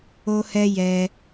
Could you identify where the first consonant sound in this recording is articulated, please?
glottal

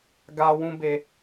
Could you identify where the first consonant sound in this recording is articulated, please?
velar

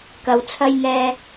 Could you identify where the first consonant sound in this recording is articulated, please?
velar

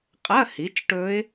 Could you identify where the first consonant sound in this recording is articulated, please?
uvular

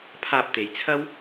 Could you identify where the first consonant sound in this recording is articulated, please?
labial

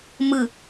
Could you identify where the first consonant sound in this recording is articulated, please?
labial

